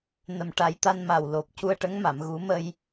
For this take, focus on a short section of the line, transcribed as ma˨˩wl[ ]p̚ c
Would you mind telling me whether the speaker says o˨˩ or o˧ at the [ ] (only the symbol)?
o˨˩